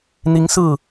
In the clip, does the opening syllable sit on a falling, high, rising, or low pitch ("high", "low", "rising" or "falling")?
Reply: rising